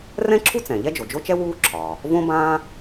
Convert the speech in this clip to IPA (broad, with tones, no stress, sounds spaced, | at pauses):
r ɛ̃˥ ǁʰ u˥ t͡s ɛ̃˩ ʎ ɛ˥ d͡ʒ o˩ d͡ʒ o˥ t͡ʃ ɛ˥ w uː˥ ǁʰ ɒː˩ | v õ˥ b ãː˥